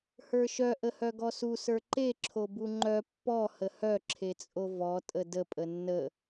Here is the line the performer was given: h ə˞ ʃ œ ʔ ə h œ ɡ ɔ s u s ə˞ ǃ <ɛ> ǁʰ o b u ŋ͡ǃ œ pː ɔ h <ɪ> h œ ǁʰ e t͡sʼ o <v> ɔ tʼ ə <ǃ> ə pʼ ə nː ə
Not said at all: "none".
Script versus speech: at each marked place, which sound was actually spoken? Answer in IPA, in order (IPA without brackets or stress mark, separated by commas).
e, ə, v, d